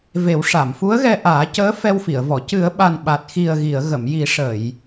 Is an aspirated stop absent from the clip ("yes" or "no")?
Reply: yes